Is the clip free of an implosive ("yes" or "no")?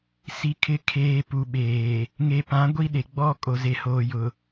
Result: no